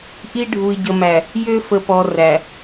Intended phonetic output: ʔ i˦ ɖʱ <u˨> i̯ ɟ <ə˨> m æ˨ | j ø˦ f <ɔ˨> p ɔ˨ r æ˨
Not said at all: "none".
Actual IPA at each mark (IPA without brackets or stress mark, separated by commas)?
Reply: u˨, ə˨, ə˨